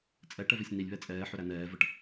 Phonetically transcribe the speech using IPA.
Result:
t͡sʼ ɛ ʈ ɛ v e sʲ n i lʲ β ɛ t͡sʼ ɛː ħ ʏ ɾ æ n ɛː v ə ʈ

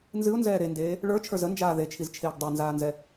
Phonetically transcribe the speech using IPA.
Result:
n z ɨ ʊ̯ n z ɛː ɾ e n d eː | ɭ ə˞ t͡ʃʰ ə˞ z ə n d͡ʒ aː ð e t͡ʃʰ i z t͡ʃʰ eː ɡ dˤ ɛ n z aː n z ɛ

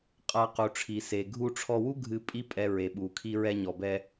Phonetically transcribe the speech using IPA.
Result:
qʼ a˧ q u˩ ʈ͡ʂʰ i˩ s e˩ ɡʱ u˧ ʈ͡ʂʰ ɔ˧ w u˥ ɡʱ ɨ˧ pʼ i˥ pʼ ɛ˧ ɹ e˩ ɓ u˩ kʰ i˧ ɹ ɛ˧ ɲ ɔ˩ b ɛ˧

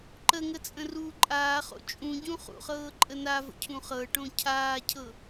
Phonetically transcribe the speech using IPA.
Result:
ǃ ə ŋ ə t͡sʼ ə̃ r uː ǃʼ aː χ o̰ t͡ʃʼ ũ ɟ ũ χ ṵ χ ɤː ǃʼ ə n a v ə̰ cʰ ũ χ ɤ ʈ õ cʰ aː cʰ ɤ

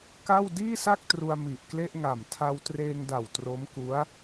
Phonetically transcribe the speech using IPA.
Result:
k a˥˩ w d iː˥˩ s a˥˩ k̚ t r u˧ a̯ m i˨˩ ʔ k l e˥˩ ʔ ŋ a˨˩ m tʰ a˧ w t r eː˧ ŋ d a˨˩ w t r o˦˥ m k u˦˥ a̯

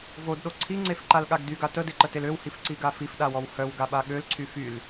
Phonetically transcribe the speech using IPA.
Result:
v o d ɗ o ǀʰ i ŋ͡ǀ e f ǃ a l ɠ a ɡ d y ɡ a t ə d e ǃ ə t e l ø w h i f ǀ i ɡ a f i f ɗ a w ɔ w h œ w ɡ a ɓ a ɠ ø l ǀʰ y f y l

